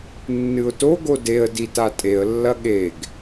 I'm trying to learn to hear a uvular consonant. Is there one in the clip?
no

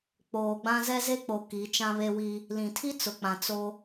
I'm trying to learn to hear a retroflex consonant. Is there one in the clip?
no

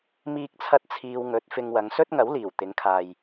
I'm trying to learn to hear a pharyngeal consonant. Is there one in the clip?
no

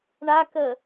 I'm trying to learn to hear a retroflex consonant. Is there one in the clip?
yes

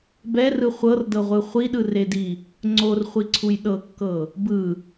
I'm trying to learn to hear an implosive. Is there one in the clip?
yes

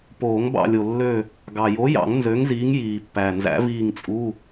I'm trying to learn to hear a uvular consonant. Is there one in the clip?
no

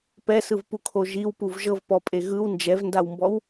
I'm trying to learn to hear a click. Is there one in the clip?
no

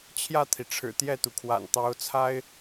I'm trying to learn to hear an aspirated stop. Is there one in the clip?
yes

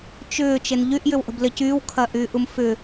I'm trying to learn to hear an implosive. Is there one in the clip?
no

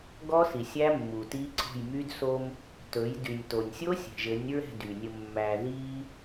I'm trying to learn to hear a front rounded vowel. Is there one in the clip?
yes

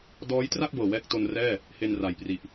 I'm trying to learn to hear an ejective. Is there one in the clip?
no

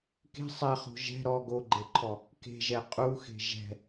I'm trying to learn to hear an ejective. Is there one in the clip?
yes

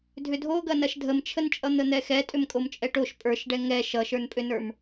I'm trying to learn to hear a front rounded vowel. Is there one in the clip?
yes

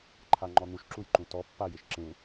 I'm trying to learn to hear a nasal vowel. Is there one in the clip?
yes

